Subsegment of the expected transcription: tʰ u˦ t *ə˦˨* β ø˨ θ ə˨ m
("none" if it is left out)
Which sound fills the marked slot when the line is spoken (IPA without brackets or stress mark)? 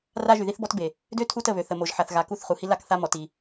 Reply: ə˦˨